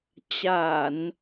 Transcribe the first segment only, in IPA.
t͡ɕ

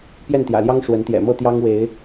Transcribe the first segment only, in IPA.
p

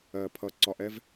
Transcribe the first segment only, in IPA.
ɜ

